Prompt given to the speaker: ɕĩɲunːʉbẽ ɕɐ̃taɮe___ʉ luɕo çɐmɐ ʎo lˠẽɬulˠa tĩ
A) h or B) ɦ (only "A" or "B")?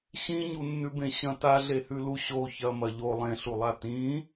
A